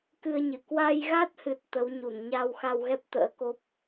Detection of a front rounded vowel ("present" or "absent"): absent